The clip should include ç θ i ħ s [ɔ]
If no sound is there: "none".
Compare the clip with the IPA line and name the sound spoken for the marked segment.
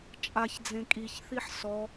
ɔ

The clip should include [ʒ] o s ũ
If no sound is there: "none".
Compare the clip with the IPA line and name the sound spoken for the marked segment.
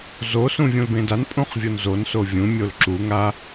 z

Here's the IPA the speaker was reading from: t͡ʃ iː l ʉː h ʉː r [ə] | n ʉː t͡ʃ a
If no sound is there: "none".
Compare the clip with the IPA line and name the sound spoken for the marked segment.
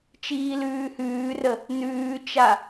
ə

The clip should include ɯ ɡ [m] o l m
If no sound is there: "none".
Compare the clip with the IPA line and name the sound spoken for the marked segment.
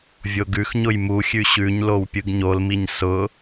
ɲ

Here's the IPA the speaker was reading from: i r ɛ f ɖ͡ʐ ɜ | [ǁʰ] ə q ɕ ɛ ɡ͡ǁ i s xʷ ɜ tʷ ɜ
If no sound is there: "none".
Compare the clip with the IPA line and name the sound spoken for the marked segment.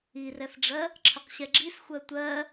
ǁʰ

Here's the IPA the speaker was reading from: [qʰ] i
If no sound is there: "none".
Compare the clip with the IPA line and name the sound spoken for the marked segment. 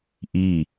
ʔ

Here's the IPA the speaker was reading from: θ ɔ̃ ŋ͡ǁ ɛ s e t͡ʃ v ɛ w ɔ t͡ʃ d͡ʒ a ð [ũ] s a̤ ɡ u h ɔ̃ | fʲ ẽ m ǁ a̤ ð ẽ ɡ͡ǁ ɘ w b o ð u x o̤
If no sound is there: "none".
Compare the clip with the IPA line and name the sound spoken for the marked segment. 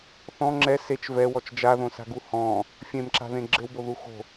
õ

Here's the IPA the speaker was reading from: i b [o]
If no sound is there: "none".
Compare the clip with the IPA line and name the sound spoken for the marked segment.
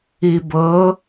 ɤ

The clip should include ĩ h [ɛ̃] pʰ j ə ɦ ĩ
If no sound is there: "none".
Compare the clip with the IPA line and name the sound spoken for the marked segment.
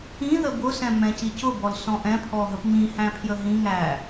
æ̃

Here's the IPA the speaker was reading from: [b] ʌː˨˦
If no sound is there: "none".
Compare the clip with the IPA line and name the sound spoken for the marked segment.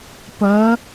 p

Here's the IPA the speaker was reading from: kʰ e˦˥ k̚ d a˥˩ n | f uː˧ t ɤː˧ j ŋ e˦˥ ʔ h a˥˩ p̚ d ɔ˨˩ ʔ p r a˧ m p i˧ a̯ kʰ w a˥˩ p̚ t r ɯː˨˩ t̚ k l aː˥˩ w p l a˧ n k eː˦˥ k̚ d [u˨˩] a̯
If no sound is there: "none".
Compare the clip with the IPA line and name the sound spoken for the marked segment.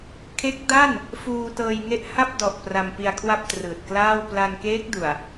u˨˩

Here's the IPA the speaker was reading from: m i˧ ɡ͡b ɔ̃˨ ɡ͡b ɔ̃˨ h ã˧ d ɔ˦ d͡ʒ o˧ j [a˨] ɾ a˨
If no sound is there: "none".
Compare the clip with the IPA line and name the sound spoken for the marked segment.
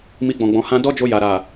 a˨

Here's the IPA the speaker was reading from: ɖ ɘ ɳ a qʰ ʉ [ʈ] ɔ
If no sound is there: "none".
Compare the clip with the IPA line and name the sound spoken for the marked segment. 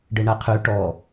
ʈ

